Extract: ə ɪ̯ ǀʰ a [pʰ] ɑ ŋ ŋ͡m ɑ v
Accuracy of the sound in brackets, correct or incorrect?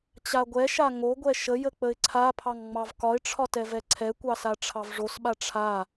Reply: correct